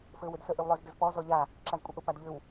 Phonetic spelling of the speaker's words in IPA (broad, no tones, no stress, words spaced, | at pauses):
fɘːwʏdsə ʔʏwlˠʏːzdɘzpɔ zɔʎa | ǁazkʷʼɪʔʊ padʎʏw